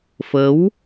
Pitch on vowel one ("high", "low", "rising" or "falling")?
rising